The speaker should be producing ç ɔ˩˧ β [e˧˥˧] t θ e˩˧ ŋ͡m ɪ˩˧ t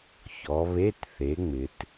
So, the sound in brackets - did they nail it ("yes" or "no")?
yes